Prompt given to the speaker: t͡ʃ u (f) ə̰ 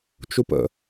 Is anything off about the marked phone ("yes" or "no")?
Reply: yes